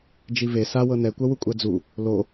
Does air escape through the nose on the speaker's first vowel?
no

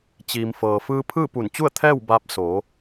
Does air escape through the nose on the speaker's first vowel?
no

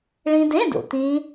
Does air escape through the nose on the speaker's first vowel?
yes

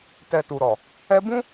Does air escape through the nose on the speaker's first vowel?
no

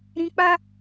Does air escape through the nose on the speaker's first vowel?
yes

